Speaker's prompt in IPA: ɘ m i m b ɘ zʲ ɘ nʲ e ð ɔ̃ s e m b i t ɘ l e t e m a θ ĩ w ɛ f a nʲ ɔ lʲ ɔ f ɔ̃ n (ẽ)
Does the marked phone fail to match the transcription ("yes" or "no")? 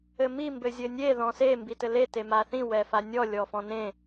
no